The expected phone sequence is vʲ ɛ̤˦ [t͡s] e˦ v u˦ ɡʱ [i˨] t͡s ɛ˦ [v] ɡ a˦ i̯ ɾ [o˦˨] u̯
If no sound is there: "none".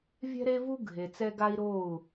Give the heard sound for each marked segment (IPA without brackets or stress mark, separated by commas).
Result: ɾ, e˨, none, o˦˨